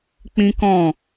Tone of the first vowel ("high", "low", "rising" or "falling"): high